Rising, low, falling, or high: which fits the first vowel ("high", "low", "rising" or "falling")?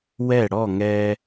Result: falling